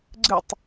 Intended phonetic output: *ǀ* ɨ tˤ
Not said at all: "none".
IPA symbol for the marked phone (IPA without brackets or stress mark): ɡ͡ǀ